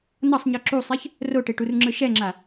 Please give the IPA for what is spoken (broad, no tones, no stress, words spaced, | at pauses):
nʌsˤɲɯ ǁusˤɛç | roʈeʈurŋ͡ǁɯ ʃɛŋ͡ǁa